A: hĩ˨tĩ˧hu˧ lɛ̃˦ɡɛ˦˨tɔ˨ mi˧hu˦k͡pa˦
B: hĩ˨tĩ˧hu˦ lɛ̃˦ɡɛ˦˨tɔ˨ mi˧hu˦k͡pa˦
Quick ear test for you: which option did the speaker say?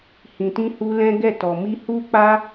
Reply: A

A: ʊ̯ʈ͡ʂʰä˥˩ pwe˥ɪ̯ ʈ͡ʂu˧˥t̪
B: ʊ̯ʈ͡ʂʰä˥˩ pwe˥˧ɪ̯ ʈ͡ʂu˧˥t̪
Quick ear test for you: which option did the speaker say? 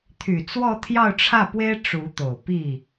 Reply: A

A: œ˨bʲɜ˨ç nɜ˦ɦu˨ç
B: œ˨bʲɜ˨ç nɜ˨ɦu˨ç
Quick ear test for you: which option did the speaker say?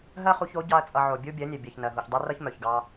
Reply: B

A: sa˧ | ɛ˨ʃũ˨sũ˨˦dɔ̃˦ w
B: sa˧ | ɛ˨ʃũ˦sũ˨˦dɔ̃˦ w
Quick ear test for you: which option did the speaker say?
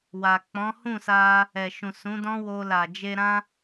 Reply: A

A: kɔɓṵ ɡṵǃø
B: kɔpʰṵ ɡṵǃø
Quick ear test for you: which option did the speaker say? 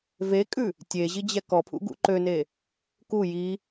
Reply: B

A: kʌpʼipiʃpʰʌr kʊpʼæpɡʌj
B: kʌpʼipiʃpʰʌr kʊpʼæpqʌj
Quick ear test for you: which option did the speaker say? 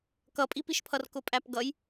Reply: A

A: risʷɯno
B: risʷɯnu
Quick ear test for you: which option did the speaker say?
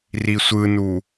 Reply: B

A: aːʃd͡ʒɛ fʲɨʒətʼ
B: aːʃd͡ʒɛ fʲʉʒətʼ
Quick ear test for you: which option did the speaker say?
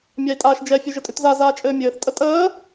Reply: B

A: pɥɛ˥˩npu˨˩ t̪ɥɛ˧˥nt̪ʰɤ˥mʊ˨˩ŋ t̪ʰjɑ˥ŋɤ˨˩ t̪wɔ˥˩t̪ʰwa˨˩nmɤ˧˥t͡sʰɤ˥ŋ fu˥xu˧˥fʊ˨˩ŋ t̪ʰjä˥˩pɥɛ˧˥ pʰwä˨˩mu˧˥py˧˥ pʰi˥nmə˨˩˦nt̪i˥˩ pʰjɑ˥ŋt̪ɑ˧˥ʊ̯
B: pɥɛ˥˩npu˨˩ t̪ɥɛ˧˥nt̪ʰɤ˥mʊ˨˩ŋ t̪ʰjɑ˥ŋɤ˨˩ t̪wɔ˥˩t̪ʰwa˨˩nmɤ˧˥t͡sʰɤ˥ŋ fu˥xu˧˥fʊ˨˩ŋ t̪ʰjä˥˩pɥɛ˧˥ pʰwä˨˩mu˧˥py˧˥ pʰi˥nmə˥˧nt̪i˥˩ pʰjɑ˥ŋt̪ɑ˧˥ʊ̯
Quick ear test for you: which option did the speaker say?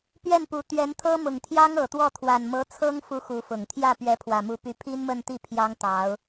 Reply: B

